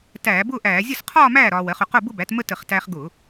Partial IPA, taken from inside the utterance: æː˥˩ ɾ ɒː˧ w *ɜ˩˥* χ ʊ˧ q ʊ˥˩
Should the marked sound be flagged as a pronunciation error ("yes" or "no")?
no